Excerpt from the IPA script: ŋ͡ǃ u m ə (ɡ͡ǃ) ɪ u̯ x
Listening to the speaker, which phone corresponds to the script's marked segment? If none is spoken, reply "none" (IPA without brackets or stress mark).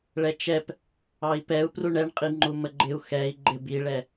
ɡ͡ǃ